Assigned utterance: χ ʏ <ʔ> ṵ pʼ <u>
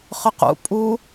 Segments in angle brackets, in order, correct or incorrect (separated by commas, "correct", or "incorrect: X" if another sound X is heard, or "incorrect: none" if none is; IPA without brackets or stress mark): incorrect: q, correct